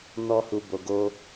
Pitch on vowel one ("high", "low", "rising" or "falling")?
high